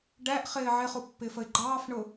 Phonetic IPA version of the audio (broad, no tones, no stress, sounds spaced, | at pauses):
ɖ æ ʔ χ ɪː ʕ ɪ χ u pː ɪ f ə ɪ̯ ɡ͡ǃ ɑː f ɳ ʊ